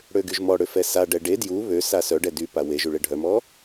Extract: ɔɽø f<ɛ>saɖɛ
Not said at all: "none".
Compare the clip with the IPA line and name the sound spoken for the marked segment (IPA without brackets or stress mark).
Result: ɛ